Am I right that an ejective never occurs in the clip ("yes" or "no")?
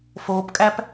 no